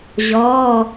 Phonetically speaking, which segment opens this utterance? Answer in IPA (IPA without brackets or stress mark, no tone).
ʑ